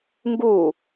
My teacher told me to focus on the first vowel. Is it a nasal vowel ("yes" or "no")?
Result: no